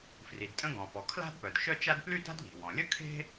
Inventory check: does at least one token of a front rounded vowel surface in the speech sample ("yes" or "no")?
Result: yes